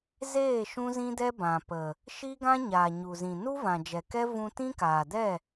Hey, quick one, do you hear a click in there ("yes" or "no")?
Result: no